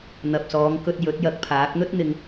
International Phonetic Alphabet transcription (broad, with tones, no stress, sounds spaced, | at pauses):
n̪ ɐ˨ p̚ s ɔː˨˧ ŋ k ɵ˧ t̚ j ɵ˨˥ t̚ j ɐ˧ k̚ pʰ aː˨˥ k̚ n̪ ɵ˥ t̚ n̪ ɪ˧ ŋ